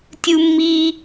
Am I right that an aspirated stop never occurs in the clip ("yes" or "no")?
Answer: yes